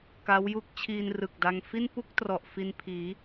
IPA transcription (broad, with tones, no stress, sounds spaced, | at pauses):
k a˦˥ w j u˥˩ k̚ t͡ɕʰ iː˧ n r ɯ˨˩ k̚ d a˧ ŋ f i˥˩ n p u˥˩ k̚ t r ɔ˨˩ ʔ f i˧ n pʰ iː˩˦